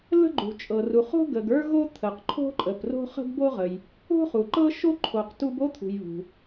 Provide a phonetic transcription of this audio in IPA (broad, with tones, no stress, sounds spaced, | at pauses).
l ə̤˦ ɡ͡ǃ ṳ˨ t͡ʃʼ ɤ˨ r u˨ χ o̤˦ ɡ ə˨ ɡ ə˞˦ ɣ o˦ t̪ʰ ə˨ q ǃʰ o̤˦ ǃʼ ə˨ p r o̤˦ χ ə̤˦ ɡ b o˦ ʁ ə˨ j | o̤˦ χ u˨ ǃ ɤ˦ ʃ o˦ ǃʰ o˨ q t u˦ b o˦ t̪ʰ ṳ˨ j β ṳ˨